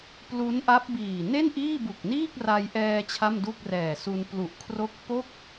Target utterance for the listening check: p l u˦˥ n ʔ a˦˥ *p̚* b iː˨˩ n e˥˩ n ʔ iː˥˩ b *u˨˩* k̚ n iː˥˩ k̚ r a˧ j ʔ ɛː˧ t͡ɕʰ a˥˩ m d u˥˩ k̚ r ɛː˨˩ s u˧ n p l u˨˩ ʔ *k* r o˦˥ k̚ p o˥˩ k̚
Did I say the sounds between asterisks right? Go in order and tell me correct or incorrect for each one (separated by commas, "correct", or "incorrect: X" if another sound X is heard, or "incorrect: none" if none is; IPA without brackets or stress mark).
correct, correct, incorrect: kʰ